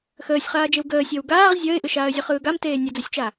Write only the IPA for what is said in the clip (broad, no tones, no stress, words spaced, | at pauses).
xəːsʲχaːd͡ʒew ɡəːsʲəːw ɡaːʁ zʲəːɪ̯ʔɯʃaːə̯ zʲɯχɯːɡam teːnʲəd͡zəsʲt͡ʃa